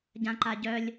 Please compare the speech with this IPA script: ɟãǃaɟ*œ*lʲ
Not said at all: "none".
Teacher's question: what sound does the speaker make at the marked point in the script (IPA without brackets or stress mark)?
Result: œ